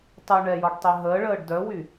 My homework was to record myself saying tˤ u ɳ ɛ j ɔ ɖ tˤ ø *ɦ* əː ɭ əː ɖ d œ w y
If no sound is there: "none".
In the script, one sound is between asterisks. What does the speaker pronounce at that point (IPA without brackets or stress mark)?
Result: ɦ